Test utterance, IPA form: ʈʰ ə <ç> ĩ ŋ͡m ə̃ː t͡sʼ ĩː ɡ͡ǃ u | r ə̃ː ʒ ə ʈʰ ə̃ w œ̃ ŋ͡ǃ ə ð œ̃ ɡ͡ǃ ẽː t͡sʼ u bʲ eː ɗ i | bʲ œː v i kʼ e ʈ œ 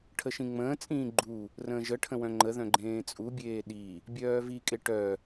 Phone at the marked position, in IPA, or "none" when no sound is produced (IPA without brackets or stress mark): ʃ